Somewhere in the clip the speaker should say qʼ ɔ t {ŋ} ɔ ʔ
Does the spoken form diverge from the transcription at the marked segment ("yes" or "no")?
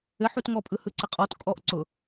yes